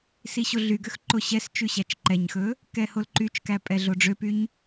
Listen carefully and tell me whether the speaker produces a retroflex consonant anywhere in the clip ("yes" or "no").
yes